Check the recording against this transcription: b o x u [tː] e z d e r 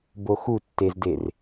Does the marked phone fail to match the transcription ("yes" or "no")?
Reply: no